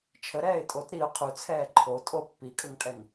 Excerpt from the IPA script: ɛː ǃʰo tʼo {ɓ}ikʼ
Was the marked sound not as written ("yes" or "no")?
yes